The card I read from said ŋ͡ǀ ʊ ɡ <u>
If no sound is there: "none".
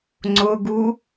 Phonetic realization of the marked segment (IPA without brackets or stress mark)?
u